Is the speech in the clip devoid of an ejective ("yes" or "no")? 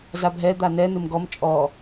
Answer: no